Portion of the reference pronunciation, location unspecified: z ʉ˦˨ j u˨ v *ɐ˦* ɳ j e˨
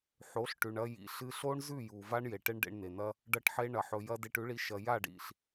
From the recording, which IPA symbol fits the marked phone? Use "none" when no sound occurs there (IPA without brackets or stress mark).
a˦